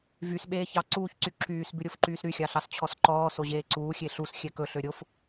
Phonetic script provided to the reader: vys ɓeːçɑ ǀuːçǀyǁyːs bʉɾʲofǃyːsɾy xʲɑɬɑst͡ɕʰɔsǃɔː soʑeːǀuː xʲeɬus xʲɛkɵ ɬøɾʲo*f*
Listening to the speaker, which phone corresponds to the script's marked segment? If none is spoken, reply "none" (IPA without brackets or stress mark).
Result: f